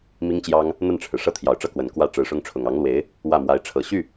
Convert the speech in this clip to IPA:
mi˥ŋt͡ɕjɑ˥ŋ | n̪ə˥˩nʈ͡ʂʰɻ̩˩ ʂɤ˥˩t̪ʰjɑ˨˩ʊ̯ʈ͡ʂɤ˥˩kwə˨˩n kwä˥˩ ʈ͡ʂɻ̩˧˥ʂʊ˥ŋʈ͡ʂʰʊ˨˩ŋ ɑ˧˥ŋlwe˧˥ɪ̯ | wä˥˩mwa˧˥ɪ̯ʈ͡ʂʰɤ˨˩ ɕy˥˩

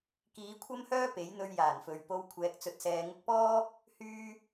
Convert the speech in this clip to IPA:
kiː˨˥kʷʰɐ˥mhœː˥ pe˨˥jn̪ɵ˧ɥ jaː˨˩nfɵ˨ɥ po˧w kʷʰɛː˧k̚t͡sɵ˧t̚sɛː˧ ŋʊ˧k̚pɔː˥ | hyː˥

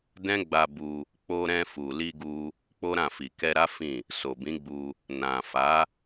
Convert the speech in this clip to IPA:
dɛ̃˦ɡ͡ba˧bu˧ | k͡po˧ɾɛ̃˧ fu˨li˧ɡu˧ | k͡po˦ɾã˦˨fi˨ kɛ˧ɾa˦ fĩ˦˨ | so˨bĩ˨˦ɡ͡bu˧ | nã˨fa˨˦

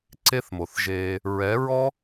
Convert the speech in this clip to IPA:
ǀe˦θmo˨θʒeː˧ | ɹɛ˨˦ɹɔ˦

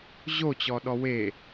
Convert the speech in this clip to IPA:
ʑot͡ɕɔ ɗɔwe

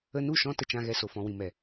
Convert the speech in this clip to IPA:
ə˧nu˦˨ʃɔ̃˧ tə˨t͡ʃã˨ɣɛ˨ so˨fɔ̃˨wĩ˨mɛ˨

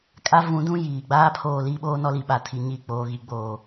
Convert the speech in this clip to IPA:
kʼa˦vũ˨˦dũ˦ jiː˨ ɡ͡baː˦pʰoː˨ li˦ɓoː˦ nɔ˦li˨ɓa˨tʰi˨ ɲi˦˨ k͡poː˨ɣi˨ɡ͡boː˨

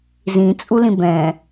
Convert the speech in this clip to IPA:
zĩt͡sʼulĩ bɛ̃

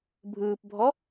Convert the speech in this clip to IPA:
bʱɯːpbʱɔ

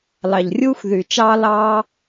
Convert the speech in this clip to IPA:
lɑ˩ʎrʲuː˧xðy˩t͡ʃɑː˧ lɑː˧

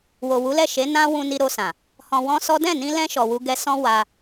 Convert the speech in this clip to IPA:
wo˨wu˨˦lɛ˦˨ʃe˨˦ nã˦ wũ˧ni˧ɾo˧sã˨ | hɔ̃˧wɔ̃˦sɔ˦ dɛ̃˦˨nĩ˧lɛ̃˧ ʃɔ˨wu˧ɡɛ˧sɔ̃˦ wa˧

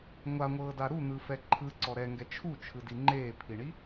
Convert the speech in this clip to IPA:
ŋʷaŋʷɤːda ɾun̪ɯfɛ ǃʰɯǀɔ ɾɛŋɡɛ t͡ʃʰut͡ʃʰɯdi ŋ͡ǃeːpʰiɳi

